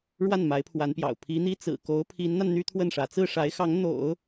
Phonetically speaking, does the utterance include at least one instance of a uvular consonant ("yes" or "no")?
no